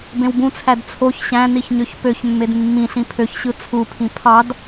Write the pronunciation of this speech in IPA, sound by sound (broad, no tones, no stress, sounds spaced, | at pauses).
b ẽ w b ũ t͡sʰ æ d t͡sʰ o ç ɕ æ̃ n i ç ɲ ø ç p ø ç mː e d mː ĩ ɬ ĩ pʰ ø ç ɕ ɯ t͡sʰ u pʰ ĩ pʰ ɑ d